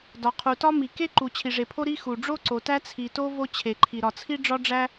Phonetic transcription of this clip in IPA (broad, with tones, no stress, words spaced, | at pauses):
dɒ˩qʰu˩tɒ˥ mi˩ke˥ ǃu˩t͡ɕʰi˩ʐe˩pʰo˥ ɾi˥xu˩ ɖ͡ʐo˥ǀo˩ tæ˥t͡sʰi˩to˥ vo˥t͡ɕʰe˩ǃʰi˩ ɾɒ˩t͡sʰi˥ɖ͡ʐɒ˥ɖ͡ʐæ˥